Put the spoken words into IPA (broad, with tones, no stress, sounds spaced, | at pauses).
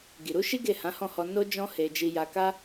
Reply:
ɡ i˨ ɾ u˨˦ ʃ i˦ ɡ e˦˨ h ã˨˦ h ɔ̃˦˨ h ɔ˧ n o˦ d͡ʒ ɔ̃˦ h e˧ d͡ʒ i˧ j a˧ k a˦